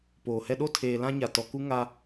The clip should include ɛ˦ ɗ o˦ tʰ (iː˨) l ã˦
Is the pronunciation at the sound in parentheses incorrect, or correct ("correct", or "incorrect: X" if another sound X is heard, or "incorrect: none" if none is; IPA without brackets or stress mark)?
incorrect: eː˨